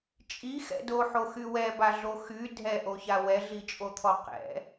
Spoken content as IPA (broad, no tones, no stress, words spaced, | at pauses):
t͡ʃʼixɛ̰ doħoxy wɛbaɮo xy dʱɛʔoça wɛɮit͡ʃʼot̪ʰɔ qɛ̰